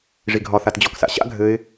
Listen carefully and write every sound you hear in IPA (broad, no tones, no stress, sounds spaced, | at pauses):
ʐ i ɡʱ ɒ θ a t d͡ʑ ɔ k s a̰ ɕ a̰ ɡʱ ɘ ɪ̯